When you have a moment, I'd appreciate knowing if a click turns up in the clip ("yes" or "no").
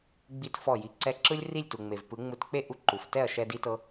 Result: yes